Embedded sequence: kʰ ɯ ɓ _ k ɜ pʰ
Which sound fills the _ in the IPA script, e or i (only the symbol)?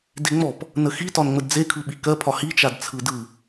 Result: i